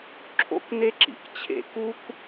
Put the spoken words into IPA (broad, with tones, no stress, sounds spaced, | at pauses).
ǁʰ o̰˦ k n e˦ ǁ ḭ˨ k t͡ɕʰ ḛ˦ k u˦ k